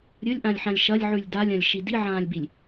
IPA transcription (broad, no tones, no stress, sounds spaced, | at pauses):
ɾʲ ɵ lʲ ʔ ã lʲ ħ ã lʲ ʃ ɐ lʲ ʕ ʉ lʲ d a lʲ ã lʲ ʃ i d i ʕ ãː lʲ b i lʲ